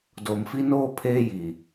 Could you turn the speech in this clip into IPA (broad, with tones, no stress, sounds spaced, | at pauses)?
d o˨ m f i˦ n oː˦ pʰ eː˦ j i˨